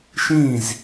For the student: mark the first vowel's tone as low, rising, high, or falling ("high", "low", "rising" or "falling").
falling